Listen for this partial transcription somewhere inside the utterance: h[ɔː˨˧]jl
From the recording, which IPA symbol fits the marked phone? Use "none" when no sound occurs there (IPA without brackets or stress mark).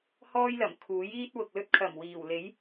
ɔː˥